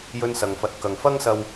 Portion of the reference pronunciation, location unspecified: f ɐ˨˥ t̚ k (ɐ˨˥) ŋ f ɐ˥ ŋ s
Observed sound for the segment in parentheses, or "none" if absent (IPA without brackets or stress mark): ɐ˨